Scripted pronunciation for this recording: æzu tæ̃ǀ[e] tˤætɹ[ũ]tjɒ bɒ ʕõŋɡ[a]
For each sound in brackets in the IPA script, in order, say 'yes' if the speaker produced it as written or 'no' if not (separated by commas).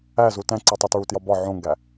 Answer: no, no, no